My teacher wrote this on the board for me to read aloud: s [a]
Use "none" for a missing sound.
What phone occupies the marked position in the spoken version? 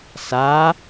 a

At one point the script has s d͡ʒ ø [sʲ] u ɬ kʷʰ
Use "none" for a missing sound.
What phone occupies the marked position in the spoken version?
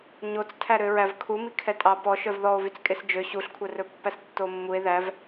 ɕ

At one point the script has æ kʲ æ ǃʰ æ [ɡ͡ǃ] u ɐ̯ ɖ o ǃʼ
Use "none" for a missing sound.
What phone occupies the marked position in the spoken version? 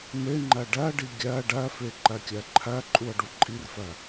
ǃʼ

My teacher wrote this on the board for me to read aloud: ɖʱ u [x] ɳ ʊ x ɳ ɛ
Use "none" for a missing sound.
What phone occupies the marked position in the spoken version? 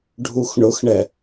x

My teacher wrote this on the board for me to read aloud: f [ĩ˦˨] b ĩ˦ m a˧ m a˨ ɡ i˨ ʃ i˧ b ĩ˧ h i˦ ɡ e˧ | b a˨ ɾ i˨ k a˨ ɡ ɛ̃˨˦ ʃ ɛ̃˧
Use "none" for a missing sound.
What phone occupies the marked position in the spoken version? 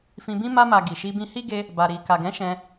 ĩ˧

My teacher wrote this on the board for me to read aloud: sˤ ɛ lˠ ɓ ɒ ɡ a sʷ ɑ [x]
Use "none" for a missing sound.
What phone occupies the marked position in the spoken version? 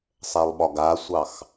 x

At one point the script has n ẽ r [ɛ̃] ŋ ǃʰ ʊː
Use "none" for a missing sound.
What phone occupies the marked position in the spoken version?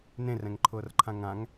ɛ̃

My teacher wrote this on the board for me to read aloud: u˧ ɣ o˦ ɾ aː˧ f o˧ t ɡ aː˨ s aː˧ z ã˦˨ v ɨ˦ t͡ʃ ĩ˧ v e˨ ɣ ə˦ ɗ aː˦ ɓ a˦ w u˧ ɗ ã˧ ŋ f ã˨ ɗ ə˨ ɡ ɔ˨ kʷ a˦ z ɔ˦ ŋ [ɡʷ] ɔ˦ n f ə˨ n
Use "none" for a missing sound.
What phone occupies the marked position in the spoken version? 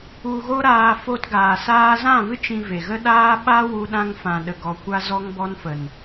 b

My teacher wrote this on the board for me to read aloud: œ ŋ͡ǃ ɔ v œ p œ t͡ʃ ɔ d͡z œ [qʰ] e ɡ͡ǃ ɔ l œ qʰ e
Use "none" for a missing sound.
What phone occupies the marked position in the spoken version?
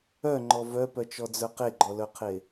q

